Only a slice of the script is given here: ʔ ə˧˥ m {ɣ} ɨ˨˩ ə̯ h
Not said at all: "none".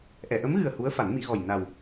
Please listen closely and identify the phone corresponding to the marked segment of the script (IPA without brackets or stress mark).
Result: ɣ